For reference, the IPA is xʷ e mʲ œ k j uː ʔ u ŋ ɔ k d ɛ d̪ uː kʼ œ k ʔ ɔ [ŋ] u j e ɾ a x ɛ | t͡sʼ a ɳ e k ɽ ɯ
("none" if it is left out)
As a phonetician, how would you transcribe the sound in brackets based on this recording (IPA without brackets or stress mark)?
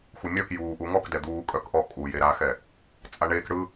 kʼ